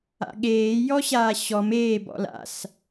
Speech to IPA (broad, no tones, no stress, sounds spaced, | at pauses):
a̰ ɠ eː j ɔ ɕ aː ɕ ɔ m eː b ɔ̰ l a̰ s